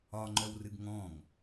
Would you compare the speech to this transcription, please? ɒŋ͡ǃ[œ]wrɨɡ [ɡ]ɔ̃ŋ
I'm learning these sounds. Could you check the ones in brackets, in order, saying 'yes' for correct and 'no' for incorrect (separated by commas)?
yes, no